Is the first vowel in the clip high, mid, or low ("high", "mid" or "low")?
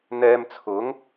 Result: mid